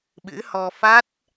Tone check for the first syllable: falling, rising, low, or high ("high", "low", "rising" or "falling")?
rising